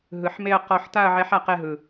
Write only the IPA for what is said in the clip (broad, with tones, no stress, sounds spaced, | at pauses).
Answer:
ɦ ɯ˨˩˦ ħ m e˥˧ ɐ̯ q ɔ˥˧ ħ t a˥˧ ɐ̯ ʕ ɛ˧˥ ħ a˧˥ q ɛ˥˧ ɦ ɯ˨